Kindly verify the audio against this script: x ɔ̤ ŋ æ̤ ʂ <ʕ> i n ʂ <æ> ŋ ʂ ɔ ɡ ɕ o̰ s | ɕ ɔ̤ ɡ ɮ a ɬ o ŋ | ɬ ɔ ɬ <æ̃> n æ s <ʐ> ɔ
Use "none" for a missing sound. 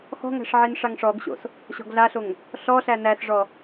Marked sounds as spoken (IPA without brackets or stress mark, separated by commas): ʕ, a, æ, ʐ